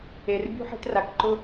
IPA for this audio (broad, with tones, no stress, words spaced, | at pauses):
e˩r bʲṳ˥ħe̤˥tra˩kǃʊ˥